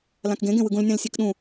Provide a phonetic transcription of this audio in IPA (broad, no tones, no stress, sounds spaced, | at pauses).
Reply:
l ã k ɡ ẽ ɡ ẽ w ɯ ɡ ũ l nʲ ã l sʲ e k ɗ ũ